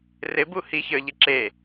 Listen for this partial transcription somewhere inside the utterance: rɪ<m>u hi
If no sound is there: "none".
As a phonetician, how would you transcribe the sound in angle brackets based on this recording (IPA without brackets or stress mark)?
b